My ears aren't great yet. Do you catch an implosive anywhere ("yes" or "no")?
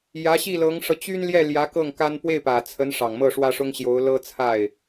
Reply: no